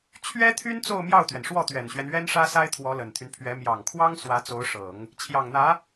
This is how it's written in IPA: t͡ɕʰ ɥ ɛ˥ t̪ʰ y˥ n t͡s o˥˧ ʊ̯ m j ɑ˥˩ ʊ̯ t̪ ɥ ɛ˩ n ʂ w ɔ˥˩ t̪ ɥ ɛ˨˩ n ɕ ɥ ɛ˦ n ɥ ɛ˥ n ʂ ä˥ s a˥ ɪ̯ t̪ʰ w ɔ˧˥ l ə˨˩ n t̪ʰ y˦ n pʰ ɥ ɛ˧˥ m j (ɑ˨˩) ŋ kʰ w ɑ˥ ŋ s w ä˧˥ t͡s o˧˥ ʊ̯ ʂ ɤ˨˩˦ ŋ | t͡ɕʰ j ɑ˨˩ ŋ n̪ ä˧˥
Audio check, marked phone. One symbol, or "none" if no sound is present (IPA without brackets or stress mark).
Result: ɑ˨˩